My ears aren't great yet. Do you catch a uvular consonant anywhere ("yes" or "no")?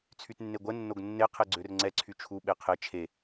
yes